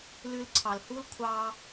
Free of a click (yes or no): no